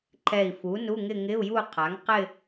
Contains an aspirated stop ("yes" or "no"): yes